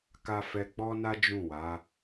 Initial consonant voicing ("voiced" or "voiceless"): voiceless